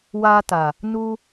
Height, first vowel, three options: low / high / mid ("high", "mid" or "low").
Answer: low